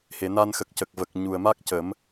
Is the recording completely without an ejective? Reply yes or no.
yes